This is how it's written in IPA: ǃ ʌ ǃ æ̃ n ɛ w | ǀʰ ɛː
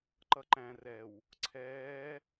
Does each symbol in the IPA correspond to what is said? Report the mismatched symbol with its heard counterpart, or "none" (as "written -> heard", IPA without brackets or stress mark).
n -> r